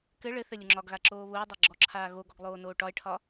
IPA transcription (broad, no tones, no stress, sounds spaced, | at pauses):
k ɘ ɭ ɘ θ ɘ lʲ ʊ ŋ͡ǁ ɒ ɡ ɣ a ǁ oː β ʊː dˤ ɛ ɡ͡ǁ ɔ ǁʰ aː ɣ o ɡ ɔ ɡ lˠ oː n oː ʈ ɒ e̯ ʈʰ ɒ